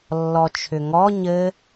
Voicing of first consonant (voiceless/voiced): voiced